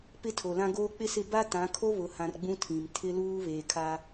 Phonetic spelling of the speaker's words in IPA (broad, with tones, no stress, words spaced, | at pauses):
pɪ˦tʰo˨lã˦ɡoː˦ k͡pɪ˦sɪ˦˨ ba˦tã˨˦ kʰo˦βʊ˨hã˨r ɡ͡bũ˦tʰĩ˨m tʰɪ˦luː˦ βeː˨kʰa˦